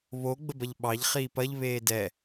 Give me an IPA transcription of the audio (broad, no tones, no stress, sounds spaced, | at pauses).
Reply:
β o ɡ͡b ə b ɐ ʎ ɓ ɑ ʎ χ iː p ɐ ʎ β eː d ɛ